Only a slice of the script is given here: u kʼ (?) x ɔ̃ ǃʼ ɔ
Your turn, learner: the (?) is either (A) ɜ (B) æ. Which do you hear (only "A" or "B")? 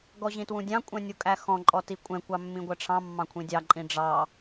B